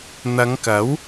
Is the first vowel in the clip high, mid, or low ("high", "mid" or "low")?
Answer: low